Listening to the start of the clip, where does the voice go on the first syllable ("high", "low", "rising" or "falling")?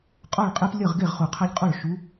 falling